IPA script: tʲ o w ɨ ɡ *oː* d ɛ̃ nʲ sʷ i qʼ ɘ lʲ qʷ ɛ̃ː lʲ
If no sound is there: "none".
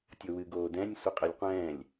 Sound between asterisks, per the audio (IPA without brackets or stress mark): oː